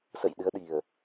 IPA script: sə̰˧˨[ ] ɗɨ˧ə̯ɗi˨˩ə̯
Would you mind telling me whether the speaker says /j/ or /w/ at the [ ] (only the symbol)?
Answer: j